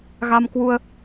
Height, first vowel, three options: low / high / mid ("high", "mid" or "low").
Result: low